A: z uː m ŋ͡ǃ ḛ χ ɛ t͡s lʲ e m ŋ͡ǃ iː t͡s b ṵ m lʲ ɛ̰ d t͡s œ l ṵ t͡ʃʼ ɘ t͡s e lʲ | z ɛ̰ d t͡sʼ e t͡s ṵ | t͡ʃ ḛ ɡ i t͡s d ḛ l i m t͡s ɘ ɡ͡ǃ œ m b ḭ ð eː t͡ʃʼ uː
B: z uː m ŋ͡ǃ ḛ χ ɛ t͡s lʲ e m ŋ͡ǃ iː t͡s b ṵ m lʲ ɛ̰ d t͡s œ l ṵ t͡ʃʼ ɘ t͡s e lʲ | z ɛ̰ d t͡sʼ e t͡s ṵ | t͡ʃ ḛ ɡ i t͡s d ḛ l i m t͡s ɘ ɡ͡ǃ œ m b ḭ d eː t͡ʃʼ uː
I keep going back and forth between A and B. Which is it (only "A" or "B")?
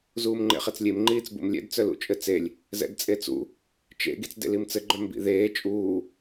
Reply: A